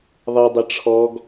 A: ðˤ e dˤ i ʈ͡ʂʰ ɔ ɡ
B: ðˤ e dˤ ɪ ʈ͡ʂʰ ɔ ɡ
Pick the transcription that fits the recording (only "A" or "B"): B